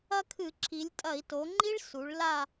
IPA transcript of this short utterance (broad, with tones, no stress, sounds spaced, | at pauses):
ɐ˥ kʰ ɨ˧˩˧ ǁʰ i˩˧ lʲ tʼ ɐ˧˩˧ i̯ t o˩˧ ŋ͡ǃ i˥ ɭ s u˩˧ ɭ l a˥˧